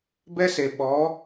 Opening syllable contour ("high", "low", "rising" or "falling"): high